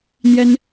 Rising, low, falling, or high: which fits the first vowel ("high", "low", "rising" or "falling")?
high